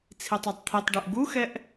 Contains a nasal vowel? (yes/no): no